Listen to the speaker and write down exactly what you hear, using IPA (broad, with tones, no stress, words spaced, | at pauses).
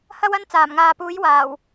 hɐ˥wɐ˥n t͡saː˨˩mŋaː˨puː˨˥j waː˨˩w